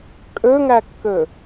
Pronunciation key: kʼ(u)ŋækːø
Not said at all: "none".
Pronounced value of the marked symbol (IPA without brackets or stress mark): ø